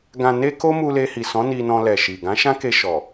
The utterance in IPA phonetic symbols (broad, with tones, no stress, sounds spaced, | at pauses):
ɡ ã˨ n e˧ k o˦ m u˧ l e˧ h i˨ s ɔ̃˨˦ n i˧ n ɔ̃˧ l ɛ˨ ʃ i˨ ɡ ã˨˦ ʃ ã˦ k e˧ ʃ ɔ˨